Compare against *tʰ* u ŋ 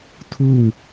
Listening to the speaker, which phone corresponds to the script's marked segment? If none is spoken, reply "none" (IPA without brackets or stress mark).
tʰ